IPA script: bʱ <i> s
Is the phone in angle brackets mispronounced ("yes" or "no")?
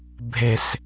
yes